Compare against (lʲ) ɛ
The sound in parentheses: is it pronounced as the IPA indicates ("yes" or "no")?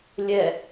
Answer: yes